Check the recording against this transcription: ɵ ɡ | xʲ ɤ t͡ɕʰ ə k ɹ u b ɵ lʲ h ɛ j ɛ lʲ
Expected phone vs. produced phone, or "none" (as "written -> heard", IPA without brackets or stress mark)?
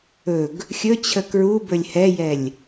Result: ɤ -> ɵ